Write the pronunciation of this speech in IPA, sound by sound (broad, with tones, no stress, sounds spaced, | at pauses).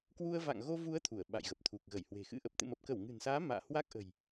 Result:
k w u˧ ə̯ v a̰˧˨ ŋ ɣ o˧ v u˨˦ ə̯ t̪ʰ u˧˩ ə̯ ɓ a̰˧˨ j ɣ ə˨˩ p̚ t̪ʰ u˨˩ k̚ ɣ ə˧˩ j h w e̤˨˩ x ɨ̰˧˥ ʔ ə˨˩ p̚ t̪ ɨ̰˧˨ m ə˨˩ p̚ k ə˧˩ w ŋ ɨ̤˨˩ n s aː˨˦ m a̰ː˧˨ h w a˦˥ k̚ ʔ ə̤˨˩ j